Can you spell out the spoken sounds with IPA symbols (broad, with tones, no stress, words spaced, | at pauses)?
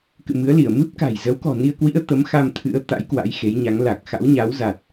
kɨ̰˧˨mɨ˨˦ə̯li˧˩ə̯ mɨ˦˥p̚ka̤˨˩j zə˨˦wkɔ̤˨˩ni˧ə̯kwḭ˧˥ə̯ t̪ə˨˦mxa˧m t̪ʰɨ̰˧˥ə̯ t̪a̰˧˥j kwa̰˧˥jxe˨˦jɲa˨˦ŋ la˨˩k̚ xa̰˧˥wɲa˨˦wza˨˩t̚